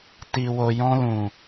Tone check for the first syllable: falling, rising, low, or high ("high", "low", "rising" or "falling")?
low